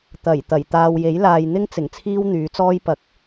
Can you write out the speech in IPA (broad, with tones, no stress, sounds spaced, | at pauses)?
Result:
t̪ ɐ˨˩ j t̪ ɐ˨˩ j t̪ aː˨ w j e˨˥ j l aː˨ j n̪ ɪ˥ ŋ t͡s ɪ˨˩ ŋ t͡sʰ iː˥ w n̪ yː˨˥ t͡s ɔː˥ j p ɐ˨˥ k̚